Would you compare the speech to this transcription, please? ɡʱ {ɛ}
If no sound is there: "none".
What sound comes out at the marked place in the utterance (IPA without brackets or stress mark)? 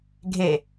e